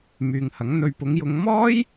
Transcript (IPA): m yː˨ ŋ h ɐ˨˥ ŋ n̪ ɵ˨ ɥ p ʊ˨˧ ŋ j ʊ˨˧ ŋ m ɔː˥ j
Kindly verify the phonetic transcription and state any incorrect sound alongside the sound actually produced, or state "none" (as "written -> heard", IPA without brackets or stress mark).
none